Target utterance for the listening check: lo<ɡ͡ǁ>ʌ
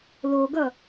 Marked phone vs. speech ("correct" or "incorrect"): incorrect